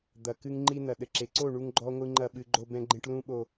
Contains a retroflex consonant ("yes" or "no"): yes